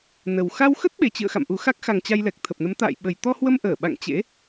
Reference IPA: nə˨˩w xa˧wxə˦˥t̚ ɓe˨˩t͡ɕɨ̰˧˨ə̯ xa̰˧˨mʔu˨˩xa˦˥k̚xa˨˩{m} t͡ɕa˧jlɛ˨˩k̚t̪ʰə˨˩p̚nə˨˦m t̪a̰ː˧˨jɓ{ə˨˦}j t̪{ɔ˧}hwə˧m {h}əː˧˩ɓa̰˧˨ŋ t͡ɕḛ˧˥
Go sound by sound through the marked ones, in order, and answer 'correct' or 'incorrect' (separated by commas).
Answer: incorrect, incorrect, correct, incorrect